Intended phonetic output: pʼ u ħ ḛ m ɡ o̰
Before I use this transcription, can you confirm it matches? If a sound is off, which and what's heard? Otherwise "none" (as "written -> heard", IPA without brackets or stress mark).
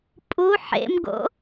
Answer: none